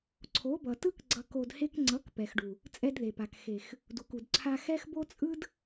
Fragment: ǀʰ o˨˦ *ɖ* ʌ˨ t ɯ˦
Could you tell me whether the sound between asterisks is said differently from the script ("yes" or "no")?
yes